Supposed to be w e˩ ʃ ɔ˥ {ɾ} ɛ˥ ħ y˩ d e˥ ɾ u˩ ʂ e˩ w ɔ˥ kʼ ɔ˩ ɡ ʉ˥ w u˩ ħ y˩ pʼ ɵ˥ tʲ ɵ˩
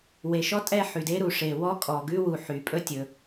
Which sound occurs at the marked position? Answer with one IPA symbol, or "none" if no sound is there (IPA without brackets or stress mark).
tʼ